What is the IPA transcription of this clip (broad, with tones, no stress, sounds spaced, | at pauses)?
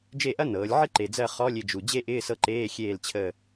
d͡ʒ e˦˨ ʔ ɐ˥ n ɤː˩˧ lʲ ʕ ɪ˥ ǃ e˨˩ d͡z ɜ˦˨ χ ɔ˧˥˧ lʲ ɪ˦˨ d͡ʒ u˨˩ d͡ʑ e˥ ʔ ɪː˧˥˧ s ɤ˦˨ ǃ eː˧˥˧ xʲ eː˦˨ l t͡ɕʰ əː˦˨